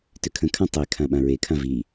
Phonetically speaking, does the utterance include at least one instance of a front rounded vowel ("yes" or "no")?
yes